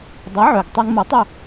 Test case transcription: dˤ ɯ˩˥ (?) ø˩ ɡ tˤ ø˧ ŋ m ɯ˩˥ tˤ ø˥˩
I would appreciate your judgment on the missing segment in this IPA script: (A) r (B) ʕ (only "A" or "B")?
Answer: B